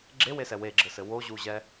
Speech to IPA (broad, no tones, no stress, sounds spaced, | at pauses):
ɡ͡ǁ e w e s ɛ w e ɡ͡ǁ ɘ s ɘ w o ʑ u ʑ ɛ